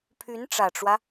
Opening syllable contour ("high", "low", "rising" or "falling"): rising